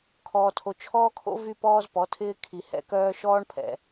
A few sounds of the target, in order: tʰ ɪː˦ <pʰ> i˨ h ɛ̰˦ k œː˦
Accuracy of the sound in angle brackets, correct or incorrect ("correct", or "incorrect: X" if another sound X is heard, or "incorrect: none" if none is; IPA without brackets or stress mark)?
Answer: incorrect: kʰ